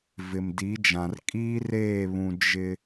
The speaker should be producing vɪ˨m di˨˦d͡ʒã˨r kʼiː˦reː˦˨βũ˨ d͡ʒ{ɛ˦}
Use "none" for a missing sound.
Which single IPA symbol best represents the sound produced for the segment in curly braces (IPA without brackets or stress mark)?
ɪ˦